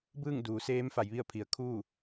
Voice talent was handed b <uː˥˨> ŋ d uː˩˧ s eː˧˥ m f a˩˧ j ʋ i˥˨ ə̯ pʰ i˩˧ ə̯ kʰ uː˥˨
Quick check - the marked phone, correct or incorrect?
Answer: incorrect